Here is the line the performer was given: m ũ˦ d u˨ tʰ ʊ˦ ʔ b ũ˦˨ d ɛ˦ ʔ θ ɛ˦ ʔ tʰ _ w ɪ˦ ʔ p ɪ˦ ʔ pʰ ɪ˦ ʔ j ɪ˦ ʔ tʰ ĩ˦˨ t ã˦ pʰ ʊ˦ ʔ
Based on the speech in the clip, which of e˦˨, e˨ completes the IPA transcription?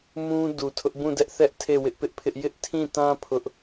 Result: e˦˨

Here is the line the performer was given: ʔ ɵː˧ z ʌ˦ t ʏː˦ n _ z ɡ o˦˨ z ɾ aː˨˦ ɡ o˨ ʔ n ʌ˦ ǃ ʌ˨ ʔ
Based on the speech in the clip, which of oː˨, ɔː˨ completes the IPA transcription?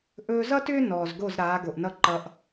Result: ɔː˨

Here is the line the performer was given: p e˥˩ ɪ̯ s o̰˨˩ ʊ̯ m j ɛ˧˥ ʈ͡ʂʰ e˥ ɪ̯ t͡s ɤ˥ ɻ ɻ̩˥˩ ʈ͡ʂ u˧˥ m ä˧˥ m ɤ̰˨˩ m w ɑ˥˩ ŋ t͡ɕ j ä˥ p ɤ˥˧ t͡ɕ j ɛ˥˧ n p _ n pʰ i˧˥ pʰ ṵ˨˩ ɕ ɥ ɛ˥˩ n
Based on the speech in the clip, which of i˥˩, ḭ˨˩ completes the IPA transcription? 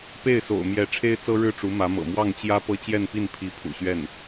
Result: i˥˩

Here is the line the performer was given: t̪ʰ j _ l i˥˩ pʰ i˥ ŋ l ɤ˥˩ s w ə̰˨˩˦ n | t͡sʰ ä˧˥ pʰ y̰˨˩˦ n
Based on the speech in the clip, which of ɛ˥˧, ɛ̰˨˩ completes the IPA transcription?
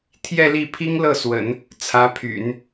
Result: ɛ˥˧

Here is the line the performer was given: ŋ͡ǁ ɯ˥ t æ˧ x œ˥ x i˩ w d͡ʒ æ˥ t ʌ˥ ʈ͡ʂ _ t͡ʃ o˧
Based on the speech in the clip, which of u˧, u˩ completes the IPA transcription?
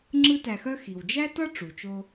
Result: u˩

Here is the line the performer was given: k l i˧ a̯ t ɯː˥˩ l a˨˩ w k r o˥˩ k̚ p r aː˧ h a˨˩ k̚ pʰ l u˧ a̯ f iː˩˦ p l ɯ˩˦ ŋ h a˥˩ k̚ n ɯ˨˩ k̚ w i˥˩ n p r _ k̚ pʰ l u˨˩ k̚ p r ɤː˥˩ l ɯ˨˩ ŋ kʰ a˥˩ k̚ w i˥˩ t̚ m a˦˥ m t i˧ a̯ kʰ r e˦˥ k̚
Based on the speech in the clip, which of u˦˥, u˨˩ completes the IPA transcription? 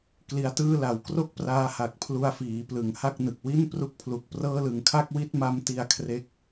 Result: u˦˥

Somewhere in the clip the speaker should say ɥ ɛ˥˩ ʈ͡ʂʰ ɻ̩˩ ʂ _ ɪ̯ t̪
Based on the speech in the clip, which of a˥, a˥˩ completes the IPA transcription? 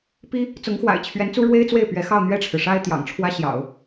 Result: a˥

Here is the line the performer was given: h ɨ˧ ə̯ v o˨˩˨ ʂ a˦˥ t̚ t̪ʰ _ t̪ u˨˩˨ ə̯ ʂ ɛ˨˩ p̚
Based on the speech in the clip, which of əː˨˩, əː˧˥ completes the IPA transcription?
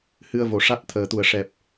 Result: əː˨˩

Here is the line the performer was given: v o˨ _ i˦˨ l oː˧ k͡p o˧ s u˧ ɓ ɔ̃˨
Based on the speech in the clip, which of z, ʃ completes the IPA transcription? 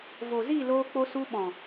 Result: z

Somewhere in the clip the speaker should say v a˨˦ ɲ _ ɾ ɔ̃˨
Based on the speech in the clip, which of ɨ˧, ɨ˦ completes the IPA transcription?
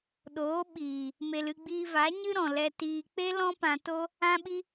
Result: ɨ˦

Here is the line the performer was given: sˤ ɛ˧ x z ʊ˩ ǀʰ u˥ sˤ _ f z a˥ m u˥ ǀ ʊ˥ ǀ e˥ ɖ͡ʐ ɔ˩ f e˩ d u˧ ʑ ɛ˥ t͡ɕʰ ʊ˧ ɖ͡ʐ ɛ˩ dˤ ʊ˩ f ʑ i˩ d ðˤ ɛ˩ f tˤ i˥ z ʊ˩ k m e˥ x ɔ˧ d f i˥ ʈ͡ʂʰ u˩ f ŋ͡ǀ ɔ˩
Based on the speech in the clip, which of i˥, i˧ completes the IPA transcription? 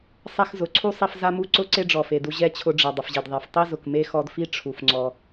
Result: i˧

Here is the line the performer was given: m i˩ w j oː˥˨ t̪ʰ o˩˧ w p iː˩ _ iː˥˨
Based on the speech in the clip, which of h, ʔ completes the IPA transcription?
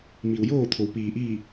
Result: ʔ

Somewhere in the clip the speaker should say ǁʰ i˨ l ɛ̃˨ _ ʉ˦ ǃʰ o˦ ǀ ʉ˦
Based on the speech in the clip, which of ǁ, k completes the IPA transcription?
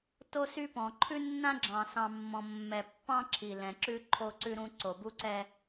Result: ǁ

